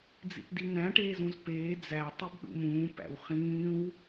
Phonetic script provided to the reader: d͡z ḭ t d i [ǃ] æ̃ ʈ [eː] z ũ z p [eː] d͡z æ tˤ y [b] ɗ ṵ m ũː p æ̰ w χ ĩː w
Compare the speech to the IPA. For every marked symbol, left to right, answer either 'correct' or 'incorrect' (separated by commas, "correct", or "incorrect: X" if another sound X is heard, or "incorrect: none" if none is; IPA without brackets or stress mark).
incorrect: n̪, correct, correct, correct